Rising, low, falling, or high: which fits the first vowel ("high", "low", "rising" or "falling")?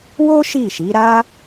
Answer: high